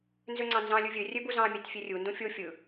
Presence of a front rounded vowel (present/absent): present